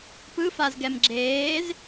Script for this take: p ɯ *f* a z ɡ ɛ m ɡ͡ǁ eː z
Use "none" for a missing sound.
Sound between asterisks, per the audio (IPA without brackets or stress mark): f